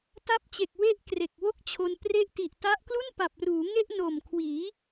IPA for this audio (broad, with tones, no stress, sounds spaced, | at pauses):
t a˦˥ p̚ t͡ɕ e˨˩ k̚ w e˦˥ ʔ k r e˨˩ k̚ w o˥˩ k̚ t͡ɕʰ o˧ n p r e˦˥ ʔ t i˨˩ ʔ t a˦˥ ʔ k l u˥˩ n p a˨˩ p̚ r uː˩˦ ŋ e˥˩ ʔ n o˨˩ m kʰ w iː˩˦